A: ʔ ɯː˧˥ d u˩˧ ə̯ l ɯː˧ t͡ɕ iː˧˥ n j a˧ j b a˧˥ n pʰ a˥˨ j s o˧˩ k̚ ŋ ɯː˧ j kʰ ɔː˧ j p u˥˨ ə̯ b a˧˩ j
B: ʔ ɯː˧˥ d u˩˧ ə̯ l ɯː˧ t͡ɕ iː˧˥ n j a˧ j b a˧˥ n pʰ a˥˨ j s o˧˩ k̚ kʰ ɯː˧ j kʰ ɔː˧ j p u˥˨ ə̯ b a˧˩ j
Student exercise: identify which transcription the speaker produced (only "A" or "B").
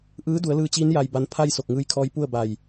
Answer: A